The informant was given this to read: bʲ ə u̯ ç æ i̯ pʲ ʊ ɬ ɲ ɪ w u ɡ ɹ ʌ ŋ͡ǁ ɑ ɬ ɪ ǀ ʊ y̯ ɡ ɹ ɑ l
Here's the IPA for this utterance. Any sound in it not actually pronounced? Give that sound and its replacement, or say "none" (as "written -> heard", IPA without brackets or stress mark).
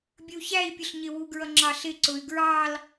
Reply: none